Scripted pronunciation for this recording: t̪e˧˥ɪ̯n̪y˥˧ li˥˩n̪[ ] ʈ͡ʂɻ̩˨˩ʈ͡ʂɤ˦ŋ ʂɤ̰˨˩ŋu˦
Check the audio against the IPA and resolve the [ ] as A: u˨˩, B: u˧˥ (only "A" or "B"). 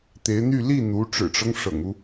B